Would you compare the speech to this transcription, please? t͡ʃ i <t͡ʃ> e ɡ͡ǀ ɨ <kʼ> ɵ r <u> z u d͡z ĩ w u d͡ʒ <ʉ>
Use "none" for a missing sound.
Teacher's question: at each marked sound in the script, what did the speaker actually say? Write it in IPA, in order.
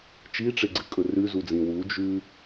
ʈ͡ʂ, kʼ, ʉ, ʉ

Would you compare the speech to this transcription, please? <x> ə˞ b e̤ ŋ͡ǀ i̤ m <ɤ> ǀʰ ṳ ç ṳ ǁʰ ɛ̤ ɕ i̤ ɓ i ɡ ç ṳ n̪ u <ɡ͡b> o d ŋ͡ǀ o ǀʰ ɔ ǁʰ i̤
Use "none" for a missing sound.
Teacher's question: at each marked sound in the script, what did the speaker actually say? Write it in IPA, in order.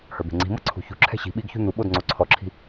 h, ɤ, ɓ

